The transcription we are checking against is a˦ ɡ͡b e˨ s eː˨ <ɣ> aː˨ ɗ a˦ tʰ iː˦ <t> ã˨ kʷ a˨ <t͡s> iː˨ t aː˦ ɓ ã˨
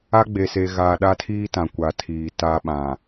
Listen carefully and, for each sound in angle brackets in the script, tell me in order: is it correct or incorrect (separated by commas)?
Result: correct, correct, incorrect